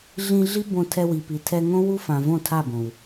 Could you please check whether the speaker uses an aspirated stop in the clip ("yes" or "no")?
yes